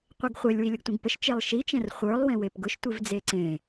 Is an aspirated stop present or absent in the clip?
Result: absent